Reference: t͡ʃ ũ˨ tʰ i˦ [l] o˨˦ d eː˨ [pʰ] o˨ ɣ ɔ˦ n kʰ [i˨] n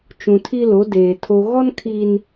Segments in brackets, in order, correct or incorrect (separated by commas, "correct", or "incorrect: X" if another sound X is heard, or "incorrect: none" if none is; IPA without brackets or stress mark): correct, incorrect: tʰ, correct